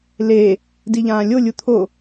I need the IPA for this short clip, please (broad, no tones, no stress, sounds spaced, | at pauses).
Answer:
l e | d i ʎ ãː lʲ o lʲ u t̪ʰ o